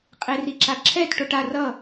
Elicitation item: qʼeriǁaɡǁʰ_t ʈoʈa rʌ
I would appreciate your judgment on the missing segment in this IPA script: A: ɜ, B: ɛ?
B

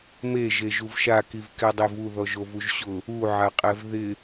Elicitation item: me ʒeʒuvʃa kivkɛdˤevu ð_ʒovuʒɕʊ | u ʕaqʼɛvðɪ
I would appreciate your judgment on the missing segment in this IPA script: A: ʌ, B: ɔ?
B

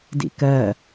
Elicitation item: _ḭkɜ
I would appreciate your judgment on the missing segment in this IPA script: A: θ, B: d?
B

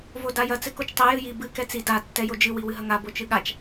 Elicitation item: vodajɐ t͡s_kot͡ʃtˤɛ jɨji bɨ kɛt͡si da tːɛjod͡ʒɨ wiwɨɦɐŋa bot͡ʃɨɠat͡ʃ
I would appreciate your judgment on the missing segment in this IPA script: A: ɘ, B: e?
A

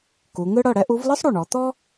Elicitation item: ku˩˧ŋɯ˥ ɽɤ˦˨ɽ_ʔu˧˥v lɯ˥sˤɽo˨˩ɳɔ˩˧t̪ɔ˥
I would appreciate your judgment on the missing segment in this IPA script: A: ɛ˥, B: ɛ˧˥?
A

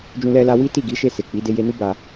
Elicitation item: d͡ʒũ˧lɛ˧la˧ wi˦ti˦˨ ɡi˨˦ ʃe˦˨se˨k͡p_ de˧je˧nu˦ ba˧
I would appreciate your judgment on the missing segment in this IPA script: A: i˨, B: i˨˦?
B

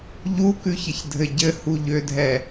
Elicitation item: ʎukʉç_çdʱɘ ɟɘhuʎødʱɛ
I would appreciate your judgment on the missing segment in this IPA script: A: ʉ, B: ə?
B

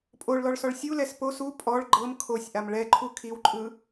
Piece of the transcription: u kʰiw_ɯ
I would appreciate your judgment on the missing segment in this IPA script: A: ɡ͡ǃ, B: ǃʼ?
B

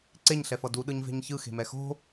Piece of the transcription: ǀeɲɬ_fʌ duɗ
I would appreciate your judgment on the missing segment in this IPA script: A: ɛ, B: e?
A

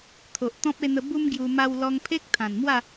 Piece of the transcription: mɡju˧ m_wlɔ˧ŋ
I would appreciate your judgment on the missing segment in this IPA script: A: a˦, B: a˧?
B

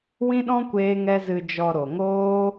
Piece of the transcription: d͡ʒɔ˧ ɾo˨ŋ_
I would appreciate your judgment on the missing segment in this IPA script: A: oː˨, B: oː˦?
B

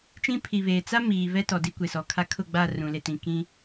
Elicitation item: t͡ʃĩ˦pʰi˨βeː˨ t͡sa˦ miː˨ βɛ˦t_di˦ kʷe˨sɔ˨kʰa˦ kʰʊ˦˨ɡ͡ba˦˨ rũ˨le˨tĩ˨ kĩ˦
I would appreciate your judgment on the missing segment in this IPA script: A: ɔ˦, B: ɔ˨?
B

